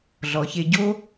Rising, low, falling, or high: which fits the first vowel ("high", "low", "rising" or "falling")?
low